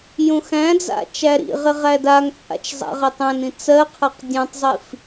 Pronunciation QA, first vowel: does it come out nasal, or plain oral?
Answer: nasal